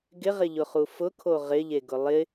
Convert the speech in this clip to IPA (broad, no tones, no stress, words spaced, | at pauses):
ɡɪʁɪʎʊχu fʊkʰo ʁɪʎeɡʊ lˠɪ